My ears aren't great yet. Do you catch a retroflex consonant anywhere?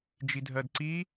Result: no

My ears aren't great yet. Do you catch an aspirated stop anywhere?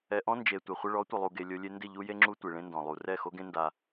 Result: no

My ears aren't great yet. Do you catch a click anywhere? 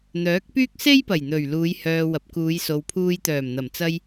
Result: no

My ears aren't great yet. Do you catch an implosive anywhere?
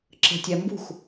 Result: no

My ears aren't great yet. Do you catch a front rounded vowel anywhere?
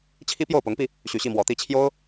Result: yes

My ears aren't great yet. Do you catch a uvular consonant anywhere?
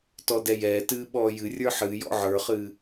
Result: yes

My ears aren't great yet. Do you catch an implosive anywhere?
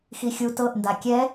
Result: no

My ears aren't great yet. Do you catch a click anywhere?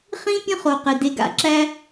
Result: yes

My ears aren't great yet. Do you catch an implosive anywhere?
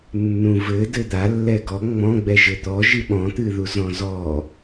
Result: yes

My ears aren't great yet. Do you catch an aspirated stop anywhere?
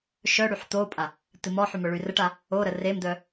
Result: no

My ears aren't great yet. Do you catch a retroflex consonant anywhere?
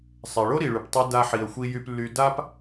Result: yes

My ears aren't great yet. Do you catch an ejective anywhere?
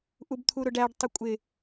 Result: yes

